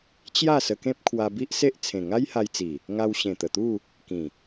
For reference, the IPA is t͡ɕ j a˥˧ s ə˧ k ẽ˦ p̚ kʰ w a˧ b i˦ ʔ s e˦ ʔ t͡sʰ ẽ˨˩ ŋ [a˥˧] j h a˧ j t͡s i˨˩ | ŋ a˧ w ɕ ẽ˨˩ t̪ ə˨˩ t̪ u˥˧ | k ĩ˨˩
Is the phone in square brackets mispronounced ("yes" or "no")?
yes